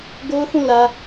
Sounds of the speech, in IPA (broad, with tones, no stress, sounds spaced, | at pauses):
ɡ o˦ ʊ̯ θ ũ˦˨ l ä˦